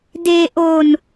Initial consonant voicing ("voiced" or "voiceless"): voiced